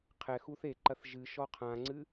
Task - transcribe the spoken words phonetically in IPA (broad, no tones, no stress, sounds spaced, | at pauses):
qʰ ɛ x u θ e ǃ ɐ θ ʒ ɨ ʃ ɔ qʰ ã ŋ͡ǀ ɨ